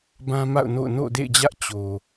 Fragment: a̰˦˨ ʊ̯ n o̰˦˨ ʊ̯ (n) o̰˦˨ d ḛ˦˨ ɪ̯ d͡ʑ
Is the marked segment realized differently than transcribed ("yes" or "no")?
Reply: no